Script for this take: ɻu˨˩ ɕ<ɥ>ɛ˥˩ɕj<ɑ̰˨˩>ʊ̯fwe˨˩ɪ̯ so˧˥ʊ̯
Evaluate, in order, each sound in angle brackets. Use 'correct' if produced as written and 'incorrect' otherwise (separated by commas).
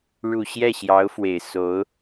incorrect, incorrect